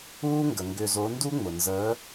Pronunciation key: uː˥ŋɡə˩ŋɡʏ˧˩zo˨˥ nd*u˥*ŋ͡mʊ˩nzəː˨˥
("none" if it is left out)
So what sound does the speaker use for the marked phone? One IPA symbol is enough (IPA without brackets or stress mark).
u˥